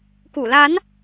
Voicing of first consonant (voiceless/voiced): voiceless